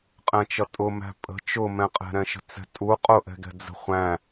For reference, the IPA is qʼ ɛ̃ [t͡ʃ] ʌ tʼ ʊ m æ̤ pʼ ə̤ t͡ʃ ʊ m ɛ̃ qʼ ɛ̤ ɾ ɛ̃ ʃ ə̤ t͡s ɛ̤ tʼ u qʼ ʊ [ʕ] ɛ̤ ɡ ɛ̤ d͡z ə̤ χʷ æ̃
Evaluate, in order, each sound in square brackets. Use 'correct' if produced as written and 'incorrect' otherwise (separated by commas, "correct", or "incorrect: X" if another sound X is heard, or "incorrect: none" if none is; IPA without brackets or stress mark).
correct, incorrect: ʔ